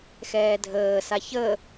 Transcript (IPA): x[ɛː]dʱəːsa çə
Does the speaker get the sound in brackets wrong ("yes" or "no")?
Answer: no